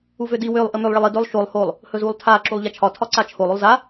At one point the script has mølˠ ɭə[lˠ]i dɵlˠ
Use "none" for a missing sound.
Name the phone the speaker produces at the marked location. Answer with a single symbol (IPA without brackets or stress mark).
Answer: lˠ